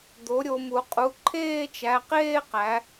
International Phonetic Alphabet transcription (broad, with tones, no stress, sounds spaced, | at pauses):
d̪ o˩˥ ɾʲ o˩˧ m u˩˧ qʼ u˩˧˩ ǃʰ eː˥˧ t͡ʃ æ˩˧˩ q eː˥˧ q æ˩˧